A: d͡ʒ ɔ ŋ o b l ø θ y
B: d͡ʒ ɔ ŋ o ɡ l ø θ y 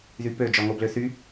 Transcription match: A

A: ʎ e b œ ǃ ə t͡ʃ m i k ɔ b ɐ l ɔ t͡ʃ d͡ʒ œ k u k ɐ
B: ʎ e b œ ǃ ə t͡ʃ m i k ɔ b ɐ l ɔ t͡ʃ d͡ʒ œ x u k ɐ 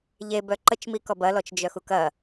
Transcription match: B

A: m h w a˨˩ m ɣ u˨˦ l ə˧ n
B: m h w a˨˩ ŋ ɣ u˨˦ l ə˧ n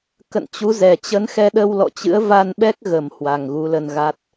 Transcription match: B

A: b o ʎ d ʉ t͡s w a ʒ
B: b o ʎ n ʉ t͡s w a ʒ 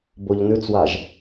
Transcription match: B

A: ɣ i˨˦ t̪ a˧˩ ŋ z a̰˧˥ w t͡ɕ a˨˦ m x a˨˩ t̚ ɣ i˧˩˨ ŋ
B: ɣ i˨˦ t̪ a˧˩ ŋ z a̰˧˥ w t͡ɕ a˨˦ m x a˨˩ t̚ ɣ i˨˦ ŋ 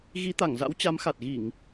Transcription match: A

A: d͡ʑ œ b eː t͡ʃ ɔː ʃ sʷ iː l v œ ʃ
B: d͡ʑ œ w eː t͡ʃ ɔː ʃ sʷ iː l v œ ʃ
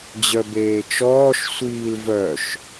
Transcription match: A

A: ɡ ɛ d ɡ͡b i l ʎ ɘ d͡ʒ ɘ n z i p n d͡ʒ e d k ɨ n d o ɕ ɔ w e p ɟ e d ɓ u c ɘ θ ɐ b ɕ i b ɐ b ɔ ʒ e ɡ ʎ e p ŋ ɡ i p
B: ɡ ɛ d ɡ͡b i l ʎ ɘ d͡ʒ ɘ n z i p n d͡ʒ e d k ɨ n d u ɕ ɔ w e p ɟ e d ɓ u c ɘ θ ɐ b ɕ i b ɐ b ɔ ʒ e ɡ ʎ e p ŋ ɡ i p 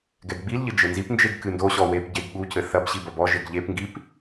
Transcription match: A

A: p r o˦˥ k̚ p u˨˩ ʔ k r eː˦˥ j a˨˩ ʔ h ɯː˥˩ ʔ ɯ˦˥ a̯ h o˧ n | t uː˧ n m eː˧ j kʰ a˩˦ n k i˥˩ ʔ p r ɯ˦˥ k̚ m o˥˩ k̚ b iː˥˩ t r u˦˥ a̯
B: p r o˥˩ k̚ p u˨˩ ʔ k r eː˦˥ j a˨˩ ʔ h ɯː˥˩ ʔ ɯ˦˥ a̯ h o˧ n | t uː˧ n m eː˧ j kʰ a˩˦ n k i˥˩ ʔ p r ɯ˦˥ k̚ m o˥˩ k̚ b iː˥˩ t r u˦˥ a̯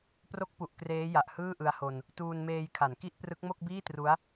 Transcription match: A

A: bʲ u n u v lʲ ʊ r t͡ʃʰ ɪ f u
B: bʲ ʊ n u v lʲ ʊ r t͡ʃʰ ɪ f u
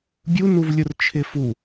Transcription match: A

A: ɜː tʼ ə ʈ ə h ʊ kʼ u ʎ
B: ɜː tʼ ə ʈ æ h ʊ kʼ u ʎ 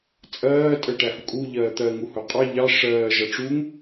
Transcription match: B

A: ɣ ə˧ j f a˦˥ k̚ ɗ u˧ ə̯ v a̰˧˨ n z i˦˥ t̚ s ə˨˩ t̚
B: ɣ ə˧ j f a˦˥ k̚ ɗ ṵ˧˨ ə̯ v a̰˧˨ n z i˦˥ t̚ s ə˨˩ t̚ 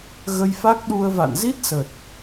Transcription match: A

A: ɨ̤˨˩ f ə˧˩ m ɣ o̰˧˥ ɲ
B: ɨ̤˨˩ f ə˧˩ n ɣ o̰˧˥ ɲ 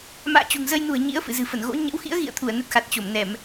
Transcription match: B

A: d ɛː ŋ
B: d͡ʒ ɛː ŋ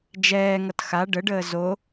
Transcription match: B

